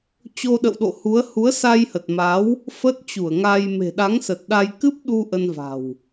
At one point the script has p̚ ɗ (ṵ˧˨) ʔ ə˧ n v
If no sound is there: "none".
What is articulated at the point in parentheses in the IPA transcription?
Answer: u˧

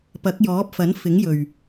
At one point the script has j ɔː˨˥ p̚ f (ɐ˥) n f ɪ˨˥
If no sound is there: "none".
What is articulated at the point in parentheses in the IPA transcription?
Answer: ɐ˨˥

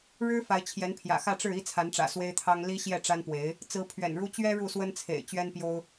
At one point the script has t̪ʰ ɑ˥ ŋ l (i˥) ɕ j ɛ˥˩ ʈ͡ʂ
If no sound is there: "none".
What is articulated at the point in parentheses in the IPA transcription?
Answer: i˥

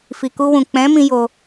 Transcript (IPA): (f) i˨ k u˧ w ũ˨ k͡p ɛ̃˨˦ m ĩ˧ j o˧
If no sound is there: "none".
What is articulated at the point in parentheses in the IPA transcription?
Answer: f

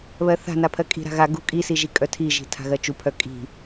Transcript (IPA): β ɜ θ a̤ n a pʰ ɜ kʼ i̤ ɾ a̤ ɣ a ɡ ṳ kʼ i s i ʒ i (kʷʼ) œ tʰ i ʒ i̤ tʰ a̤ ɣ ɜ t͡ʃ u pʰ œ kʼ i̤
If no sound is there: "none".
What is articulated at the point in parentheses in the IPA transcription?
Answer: kʼ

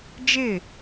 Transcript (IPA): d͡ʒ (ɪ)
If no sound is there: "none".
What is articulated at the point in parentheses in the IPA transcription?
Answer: ɪ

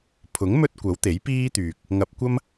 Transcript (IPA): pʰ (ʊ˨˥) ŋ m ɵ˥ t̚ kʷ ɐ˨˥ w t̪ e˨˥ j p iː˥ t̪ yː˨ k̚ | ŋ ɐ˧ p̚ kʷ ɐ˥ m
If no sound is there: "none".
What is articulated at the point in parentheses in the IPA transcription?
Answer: ʊ˨˥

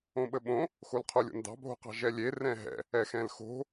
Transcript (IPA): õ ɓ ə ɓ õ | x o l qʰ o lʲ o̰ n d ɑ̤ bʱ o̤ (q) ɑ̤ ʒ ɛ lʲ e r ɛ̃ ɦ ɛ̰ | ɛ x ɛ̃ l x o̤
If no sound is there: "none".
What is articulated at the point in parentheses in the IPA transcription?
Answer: q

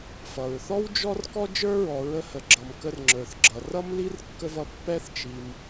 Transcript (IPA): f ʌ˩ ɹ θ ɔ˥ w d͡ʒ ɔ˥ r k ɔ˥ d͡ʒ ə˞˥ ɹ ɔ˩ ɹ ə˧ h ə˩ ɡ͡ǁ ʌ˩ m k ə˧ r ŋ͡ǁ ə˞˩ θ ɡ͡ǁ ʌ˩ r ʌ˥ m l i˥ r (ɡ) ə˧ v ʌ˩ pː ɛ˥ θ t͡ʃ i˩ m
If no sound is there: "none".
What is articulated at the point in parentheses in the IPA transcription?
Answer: kː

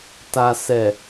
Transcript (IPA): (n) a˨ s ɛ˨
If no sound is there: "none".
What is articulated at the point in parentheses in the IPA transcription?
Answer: t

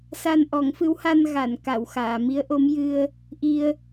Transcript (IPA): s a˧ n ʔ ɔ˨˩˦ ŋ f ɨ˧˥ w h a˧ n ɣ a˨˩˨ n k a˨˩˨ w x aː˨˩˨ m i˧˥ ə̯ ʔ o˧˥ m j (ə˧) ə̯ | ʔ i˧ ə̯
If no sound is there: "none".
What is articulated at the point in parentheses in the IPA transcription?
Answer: ɨ˧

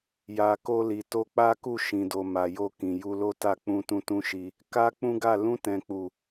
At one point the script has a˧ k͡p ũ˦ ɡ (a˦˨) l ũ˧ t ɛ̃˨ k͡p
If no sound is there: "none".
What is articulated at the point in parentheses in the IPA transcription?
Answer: a˦˨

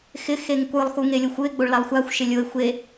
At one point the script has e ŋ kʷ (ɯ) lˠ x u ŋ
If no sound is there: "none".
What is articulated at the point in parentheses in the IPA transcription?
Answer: ɯ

